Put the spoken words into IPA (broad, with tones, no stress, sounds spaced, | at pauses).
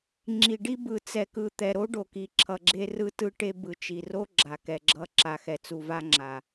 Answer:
ŋ͡ǁ i˨ ɖ i˦ b ɯ˨ t͡s ɛ˨ k ɯ˨ t̪ ɛ˨ ɾ o˦ ɖ o˨ k i˨ ǁʰ ʌ˨ ɡ͡ǁ e˦ r ɯ˦ t ɯ˦ ʈ e˦ b ɯ˨ t͡ʃ i˨ r o˦ ɡ͡ǁ a˨ k ɛ˨ ɡ͡ǁ ʌ˦ ǁ a˨ x ɛ˨ t͡s u˨ v a˦ ŋ͡ǁ a˨